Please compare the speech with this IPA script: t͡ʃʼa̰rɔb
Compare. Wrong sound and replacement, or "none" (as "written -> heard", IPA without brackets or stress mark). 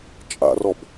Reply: none